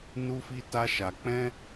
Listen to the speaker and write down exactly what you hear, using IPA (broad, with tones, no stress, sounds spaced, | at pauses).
n u˦ f i˦ t a˦ ʃ a˧ k͡p ɛ̃˦